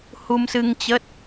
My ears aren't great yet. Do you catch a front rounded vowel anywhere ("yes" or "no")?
no